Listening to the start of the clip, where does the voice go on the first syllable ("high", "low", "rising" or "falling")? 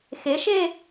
rising